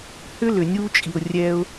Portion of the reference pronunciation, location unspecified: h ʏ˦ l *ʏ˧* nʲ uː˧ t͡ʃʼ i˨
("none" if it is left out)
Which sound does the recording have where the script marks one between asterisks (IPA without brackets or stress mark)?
ʏ˨